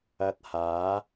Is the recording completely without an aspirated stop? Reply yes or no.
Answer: yes